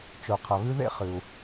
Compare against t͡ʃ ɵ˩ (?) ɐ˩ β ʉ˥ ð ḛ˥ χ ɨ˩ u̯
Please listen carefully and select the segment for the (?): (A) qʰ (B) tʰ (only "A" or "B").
A